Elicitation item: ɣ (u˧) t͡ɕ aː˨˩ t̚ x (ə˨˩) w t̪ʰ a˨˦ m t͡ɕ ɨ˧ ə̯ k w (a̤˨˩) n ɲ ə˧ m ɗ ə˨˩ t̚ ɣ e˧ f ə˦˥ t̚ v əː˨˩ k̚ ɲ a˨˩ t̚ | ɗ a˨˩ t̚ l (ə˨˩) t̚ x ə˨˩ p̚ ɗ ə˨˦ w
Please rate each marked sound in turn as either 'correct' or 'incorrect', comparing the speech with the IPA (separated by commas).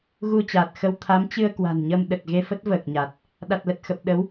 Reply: correct, incorrect, correct, correct